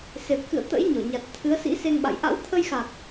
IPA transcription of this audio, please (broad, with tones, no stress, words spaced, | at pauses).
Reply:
se˨˩p̚kɨ̰˧˨ə̯ t̪ə̰˧˥jɲɔ˧˩ɲa˨˩t̚ t̪ʰɨ˨˦ə̯sḭ˧˥ se˧ŋɓa̰˧˨j ʔa̰˧˥wt̪ʰə˧jxa˨˩k̚